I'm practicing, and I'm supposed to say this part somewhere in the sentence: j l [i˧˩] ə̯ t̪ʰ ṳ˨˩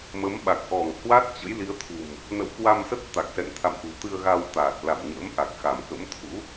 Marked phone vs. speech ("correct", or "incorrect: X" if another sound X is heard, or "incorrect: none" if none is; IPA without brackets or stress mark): incorrect: i˨˦